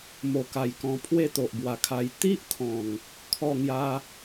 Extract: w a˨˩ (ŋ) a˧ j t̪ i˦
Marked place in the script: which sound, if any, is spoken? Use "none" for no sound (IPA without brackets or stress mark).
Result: kʰ